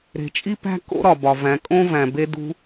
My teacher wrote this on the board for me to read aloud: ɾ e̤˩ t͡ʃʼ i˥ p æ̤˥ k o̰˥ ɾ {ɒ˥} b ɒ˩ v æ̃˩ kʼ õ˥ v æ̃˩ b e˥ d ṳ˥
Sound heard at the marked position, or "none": ɒ˩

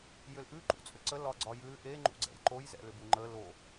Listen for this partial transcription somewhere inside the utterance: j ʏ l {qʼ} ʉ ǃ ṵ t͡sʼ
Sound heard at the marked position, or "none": ʔ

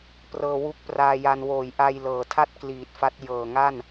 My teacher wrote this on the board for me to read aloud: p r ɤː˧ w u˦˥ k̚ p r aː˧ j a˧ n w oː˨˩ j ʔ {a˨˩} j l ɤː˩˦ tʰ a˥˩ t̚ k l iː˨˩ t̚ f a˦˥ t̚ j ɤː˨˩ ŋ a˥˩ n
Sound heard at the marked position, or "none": a˧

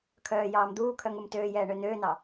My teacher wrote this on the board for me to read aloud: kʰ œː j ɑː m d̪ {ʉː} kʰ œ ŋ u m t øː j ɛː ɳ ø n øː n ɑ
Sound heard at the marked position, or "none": uː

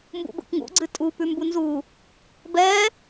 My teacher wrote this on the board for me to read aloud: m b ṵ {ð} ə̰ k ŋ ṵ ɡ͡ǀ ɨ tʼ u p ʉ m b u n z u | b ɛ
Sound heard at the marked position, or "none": b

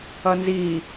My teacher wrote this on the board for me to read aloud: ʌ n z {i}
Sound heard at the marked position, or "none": i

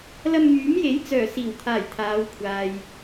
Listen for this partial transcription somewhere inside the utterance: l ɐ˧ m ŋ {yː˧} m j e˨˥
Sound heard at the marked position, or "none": yː˨˥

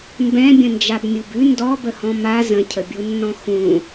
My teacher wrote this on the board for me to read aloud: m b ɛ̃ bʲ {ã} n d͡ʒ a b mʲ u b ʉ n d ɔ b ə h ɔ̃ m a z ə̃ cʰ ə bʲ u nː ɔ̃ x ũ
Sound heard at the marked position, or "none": ə̃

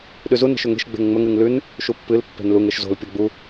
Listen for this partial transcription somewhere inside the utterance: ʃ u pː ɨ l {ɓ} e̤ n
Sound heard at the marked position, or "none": pː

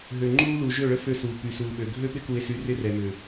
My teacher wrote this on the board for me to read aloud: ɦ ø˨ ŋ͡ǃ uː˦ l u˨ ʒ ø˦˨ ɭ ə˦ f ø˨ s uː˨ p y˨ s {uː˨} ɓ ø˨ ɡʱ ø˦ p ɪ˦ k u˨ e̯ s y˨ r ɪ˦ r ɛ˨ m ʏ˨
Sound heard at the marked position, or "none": uː˨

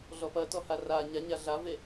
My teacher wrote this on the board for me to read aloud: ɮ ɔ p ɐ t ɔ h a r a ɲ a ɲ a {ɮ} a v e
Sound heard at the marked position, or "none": ɮ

